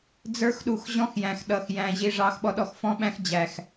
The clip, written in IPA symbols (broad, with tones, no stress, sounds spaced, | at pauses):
d͡z ə˞˧ x ɗ u˨ x ʑ ɔ̃˦ x j æ̃˨ x ɗ ʌ˨ x j æ̃˧ ʑ i˧ ʐ ɑ˦ x ɓ ɔ˦ ɗ ɔ˧ x f ɔ̃˦ ɓ æ̃˦ x d͡ʑ æ˧ x